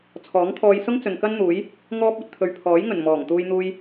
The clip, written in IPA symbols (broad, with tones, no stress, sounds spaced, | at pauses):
t͡sʰ ɔː˨˥ ŋ t̪ʰ ɔː˧ j s ʊ˥ ŋ t͡s ɵ˨ n k ɐ˥ n n̪ uː˨˥ j | ŋ ɔː˧ p̚ ɵ˨ t̚ t̪ʰ ɵ˨ ɥ pʰ ɔː˨˥ j ŋ ɵ˨˩ n m ɔː˨˩ ŋ t̪ uː˧ j n̪ uː˧ j